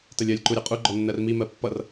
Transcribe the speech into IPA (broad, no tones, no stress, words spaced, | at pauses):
təlʲɜlʲ ǃuɾʲʌqʼu ɡ͡ǃɔnːɜrmi mɜpːʌr